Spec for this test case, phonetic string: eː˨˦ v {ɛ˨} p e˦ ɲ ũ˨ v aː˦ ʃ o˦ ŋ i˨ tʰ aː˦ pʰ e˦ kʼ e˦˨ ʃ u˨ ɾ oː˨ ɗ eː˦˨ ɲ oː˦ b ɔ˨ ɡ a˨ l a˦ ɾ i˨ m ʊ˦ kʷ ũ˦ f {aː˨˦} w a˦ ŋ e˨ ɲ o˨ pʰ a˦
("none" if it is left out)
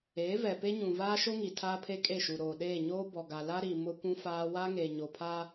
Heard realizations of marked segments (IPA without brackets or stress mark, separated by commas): ɛ˨, aː˦